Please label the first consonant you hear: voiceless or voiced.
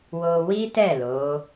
voiced